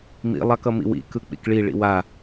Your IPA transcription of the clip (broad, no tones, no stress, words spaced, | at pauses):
mḭ lˠɑkʌmḭwḭ kɯk͡pḭkɭi ɭḭwa